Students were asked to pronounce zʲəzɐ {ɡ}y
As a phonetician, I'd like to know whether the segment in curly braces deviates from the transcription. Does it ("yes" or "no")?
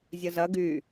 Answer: no